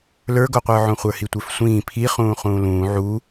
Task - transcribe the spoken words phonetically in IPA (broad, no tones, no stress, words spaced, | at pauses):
lə˞ɡoqʷə˞ʕõ χʷə˞hitʷə˞fsʷĩː pʰiχũː χũːlũː ʕu